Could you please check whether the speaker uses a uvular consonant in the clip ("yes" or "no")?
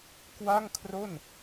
no